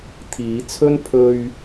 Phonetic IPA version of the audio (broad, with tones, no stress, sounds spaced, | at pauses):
t̪ʰ iː˨˧ t͡sʰ ɵ˥ n pʰ ɵ˧ ɥ